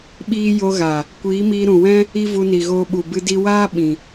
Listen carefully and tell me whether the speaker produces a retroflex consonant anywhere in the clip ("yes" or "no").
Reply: no